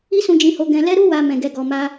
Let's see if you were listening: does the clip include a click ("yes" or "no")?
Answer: no